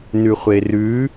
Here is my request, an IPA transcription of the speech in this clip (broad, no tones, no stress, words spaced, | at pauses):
nʉχʷerʉ